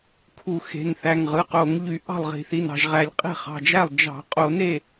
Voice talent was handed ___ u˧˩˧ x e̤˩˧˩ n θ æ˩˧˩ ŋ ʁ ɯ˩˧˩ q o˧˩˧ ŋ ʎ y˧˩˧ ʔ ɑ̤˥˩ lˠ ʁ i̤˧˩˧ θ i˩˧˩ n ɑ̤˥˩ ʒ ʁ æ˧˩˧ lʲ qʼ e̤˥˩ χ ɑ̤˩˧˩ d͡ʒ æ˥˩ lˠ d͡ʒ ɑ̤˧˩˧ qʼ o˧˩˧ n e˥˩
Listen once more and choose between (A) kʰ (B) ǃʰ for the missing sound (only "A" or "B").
A